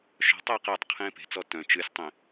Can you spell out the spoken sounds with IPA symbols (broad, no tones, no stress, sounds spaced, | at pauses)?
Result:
ʃ ɔ̤ tˤ ɛː q ɛ tˤ qʰ ẽː p e̤ t͡s ɔ t œ̃ t͡ʃ ɨ sʲ tˤ ẽ